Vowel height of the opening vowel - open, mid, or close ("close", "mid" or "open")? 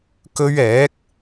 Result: mid